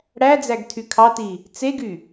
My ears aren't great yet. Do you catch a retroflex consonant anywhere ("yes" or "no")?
yes